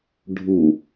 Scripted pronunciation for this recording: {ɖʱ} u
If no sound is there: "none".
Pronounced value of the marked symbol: ɖʱ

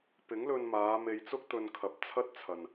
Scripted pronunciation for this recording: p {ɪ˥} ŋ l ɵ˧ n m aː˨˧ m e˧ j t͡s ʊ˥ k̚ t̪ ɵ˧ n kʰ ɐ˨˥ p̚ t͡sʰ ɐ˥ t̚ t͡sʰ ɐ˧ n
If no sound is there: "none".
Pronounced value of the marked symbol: ɪ˨˥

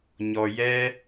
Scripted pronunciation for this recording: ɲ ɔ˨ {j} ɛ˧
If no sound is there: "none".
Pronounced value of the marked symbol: j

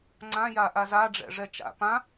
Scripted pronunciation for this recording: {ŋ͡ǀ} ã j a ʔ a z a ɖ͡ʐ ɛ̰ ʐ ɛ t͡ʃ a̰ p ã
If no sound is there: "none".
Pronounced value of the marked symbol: ŋ͡ǀ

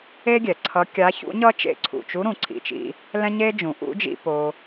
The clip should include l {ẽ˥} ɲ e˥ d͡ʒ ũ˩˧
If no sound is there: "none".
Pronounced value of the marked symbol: ɛ̃˥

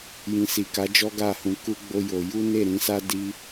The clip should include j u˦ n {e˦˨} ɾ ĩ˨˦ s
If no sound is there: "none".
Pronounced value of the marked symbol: e˦˨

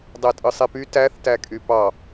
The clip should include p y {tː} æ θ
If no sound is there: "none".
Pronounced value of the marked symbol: t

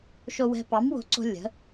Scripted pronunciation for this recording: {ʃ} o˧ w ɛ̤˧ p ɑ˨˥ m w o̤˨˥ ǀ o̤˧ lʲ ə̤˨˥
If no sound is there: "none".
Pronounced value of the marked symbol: ʃ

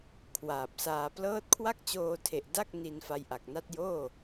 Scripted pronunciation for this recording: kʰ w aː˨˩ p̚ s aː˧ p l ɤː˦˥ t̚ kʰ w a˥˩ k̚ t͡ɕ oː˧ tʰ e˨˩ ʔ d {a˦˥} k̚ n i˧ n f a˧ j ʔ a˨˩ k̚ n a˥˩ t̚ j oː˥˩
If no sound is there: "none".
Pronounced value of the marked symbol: a˥˩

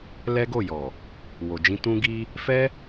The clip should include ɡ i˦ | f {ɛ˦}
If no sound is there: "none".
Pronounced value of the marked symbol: ɛ˦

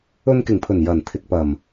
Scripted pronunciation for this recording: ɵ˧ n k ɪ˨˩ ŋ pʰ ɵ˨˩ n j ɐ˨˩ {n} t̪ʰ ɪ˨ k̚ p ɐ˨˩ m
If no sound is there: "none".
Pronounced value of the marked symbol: n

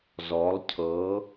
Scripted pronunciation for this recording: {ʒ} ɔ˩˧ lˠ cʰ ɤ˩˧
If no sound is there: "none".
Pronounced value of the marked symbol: z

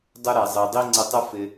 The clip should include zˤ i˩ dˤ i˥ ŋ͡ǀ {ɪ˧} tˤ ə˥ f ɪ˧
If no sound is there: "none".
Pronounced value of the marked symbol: ə˧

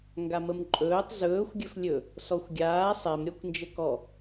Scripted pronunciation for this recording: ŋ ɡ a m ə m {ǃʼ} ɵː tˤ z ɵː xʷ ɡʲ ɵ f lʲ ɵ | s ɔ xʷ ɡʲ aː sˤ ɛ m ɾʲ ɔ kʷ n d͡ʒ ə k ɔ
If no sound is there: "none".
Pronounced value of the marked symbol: ǃʼ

